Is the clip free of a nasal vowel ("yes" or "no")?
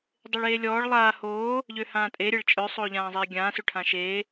no